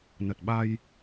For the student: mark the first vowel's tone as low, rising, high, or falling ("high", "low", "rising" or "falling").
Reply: low